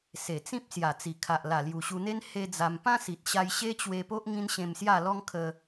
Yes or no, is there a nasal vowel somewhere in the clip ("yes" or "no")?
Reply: yes